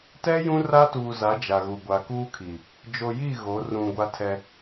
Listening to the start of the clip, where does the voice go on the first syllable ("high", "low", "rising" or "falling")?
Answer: high